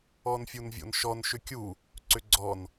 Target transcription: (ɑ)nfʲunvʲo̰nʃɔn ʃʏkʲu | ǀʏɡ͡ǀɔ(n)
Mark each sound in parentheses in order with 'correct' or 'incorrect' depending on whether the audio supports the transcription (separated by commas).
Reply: incorrect, correct